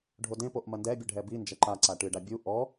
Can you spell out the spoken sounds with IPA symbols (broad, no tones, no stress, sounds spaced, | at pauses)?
ɖʱ o d ẽ p o ʔ m ɐ n d ɛ bʲ ɨ ɖʱ ɛ b i n d͡ʒ ɐ ǃ a ǀ a ʈ ɨ ɖ a bʲ u ʔ ɔ